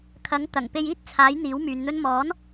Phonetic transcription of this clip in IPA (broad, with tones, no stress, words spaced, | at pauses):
kʰɐ˨˥ŋ t̪ɐ˨˩ŋ pe˧jiː˥t̚ t͡sʰaː˨˥j n̪iː˨˥wmyː˨˧nn̪ɵ˥n mɔː˨˥n